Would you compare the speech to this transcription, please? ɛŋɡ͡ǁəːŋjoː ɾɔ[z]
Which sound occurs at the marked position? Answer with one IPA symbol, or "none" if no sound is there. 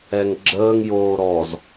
z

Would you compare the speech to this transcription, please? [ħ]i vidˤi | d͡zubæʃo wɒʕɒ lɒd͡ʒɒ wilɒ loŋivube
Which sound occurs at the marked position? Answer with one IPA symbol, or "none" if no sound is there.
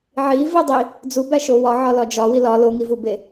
ʕ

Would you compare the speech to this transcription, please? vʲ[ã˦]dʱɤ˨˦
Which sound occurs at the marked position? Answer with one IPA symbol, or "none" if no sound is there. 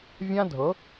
ã˦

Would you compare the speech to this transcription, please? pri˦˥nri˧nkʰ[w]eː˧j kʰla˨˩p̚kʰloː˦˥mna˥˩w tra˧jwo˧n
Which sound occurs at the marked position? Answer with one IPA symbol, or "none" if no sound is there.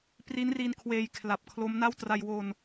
w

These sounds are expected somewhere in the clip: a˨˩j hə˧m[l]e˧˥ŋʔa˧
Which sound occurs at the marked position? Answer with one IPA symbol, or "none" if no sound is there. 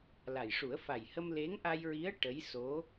l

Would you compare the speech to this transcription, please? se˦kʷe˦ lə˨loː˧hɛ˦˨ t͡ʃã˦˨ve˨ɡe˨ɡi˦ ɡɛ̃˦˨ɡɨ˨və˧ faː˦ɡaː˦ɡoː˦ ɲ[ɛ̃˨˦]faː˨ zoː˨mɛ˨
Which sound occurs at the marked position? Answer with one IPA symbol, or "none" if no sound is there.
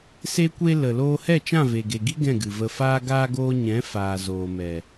ɛ̃˨˦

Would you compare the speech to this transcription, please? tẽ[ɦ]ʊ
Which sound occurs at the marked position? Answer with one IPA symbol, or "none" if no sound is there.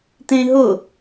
ɦ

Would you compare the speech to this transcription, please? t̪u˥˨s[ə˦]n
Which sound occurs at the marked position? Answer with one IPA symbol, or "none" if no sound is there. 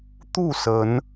ə˨˦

